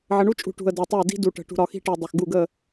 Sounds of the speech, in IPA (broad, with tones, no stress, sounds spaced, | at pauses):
ʕ ə˨ ɳ u˦ t͡ʃʼ ṳ˨ ʈ ṳ˨ ə̯ d ɜ˨ tˤ ɪ˦˨ ə̯ d i̤˦ d u˨ ʈ ə̤˨ ʈ ṳ˨ ɾ ɒ˨ x i̤˦ ʈ i˨ dˤ ɪ˨ x ɡ u˦˨ ɡ ə˦˨